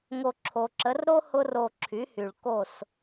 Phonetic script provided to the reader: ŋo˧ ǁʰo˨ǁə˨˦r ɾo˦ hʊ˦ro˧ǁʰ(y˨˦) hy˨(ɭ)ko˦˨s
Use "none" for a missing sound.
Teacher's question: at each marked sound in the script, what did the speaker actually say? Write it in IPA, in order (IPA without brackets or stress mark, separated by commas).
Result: y˨˦, ɭ